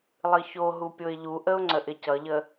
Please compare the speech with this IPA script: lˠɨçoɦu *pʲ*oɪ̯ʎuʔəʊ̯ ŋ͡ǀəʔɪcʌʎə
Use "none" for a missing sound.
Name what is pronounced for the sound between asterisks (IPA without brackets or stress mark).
pʲ